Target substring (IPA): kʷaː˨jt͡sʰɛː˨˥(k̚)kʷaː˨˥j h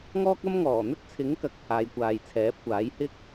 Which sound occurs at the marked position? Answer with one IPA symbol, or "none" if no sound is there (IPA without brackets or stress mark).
p̚